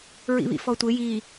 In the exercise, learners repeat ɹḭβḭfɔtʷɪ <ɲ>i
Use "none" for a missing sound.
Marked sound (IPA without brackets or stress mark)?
j